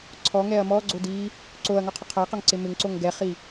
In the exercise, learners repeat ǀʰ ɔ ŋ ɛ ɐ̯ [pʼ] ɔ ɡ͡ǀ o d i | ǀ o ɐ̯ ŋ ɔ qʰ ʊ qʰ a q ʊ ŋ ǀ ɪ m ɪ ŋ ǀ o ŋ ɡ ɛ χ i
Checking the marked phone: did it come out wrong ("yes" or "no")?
yes